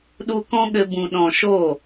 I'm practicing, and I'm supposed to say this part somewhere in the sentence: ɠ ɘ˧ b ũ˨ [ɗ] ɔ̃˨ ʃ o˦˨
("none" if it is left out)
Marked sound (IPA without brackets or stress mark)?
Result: ɗ